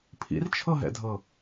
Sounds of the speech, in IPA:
pʰḭrt͡ʃʰɤɦɛ̰dʱɤ

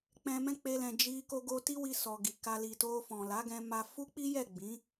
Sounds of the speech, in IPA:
k͡pɛ̃˧mɛ̃˦k͡pe˧lɛ̃˨ d͡ʒi˧ ko˧ɡo˧ ti˦wi˧sɔ˨ ɡi˨ka˧ li˨to˧fɔ̃˨ la˨˦ɡɛ̃˧ ma˧ fu˦k͡pi˦jɛ˦˨ ɡ͡bĩ˨˦

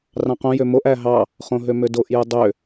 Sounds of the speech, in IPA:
rɑ̃qõ jømoʔ æɦɑ | χõɦømødoʔ jɯdˤø

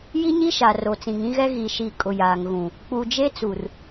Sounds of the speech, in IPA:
ji˦ɲi˦ʃa˨ ro˨t͡sĩ˨ŋĩ˦ɣɛ˦ ɣi˨ʃi˨ kʼʊ˨jaː˨ŋɣũ˨ | k͡pu˨ d͡ʒe˦t͡su˨r

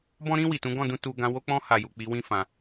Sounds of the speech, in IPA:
bɔ̃˧ɾĩ˧ wi˨tũ˨˦ɡɔ̃˦˨dũ˧ tu˧ ɡã˧ wo˧k͡pɔ̃˧ha˨ju˨ k͡pi˨˦wĩ˦fã˧

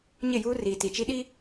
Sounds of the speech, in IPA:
ɲɪ˦˨juː˦ riː˨ ti˨t͡ʃi˦ɗi˦

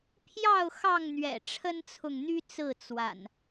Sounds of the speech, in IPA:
pʰjɑ˥˨ʊ̯ xɑ˥˨ŋn̪ɥɛ̰˨˩ ʈ͡ʂʰə˦nt͡sʰʊ˨ŋn̪y˦ t͡sɹ̩˥˨ t͡swa̰˨˩n

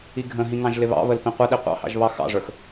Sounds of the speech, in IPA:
iɡʱə̃ɦĩ ŋɑ̃ʒlɪβɑ̰βəl pĩqʷəɗi qʷɑ̰hɑ̰ʒ βɑxɑ̰ʐə˞x

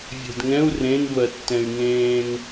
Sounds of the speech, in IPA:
vʲe̤dŋɛ̃u̯ rẽn vɜtːɛ̃y̯ŋẽːŋ

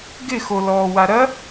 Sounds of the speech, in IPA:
ɡɪxolɔː waɾɐ

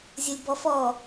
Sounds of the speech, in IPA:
zʲolʲbɔf ɔ

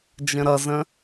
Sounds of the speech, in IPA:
d͡ʒə̃ɾʌzə̃

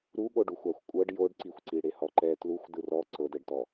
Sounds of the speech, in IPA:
ɾuɠoɖuxʷaxʷ kʷʼɤɖ joɖǀixʷǀi ɽehɔǃɛ tluxʷ dɯrɔ ǀɤdɛɖtɔ

